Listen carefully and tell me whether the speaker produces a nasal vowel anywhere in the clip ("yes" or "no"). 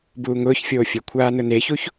no